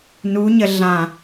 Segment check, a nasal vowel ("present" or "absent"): present